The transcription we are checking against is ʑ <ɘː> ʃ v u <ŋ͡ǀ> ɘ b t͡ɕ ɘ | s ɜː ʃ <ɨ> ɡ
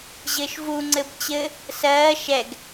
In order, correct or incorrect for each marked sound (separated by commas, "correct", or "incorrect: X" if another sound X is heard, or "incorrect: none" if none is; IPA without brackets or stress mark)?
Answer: correct, correct, incorrect: ɛ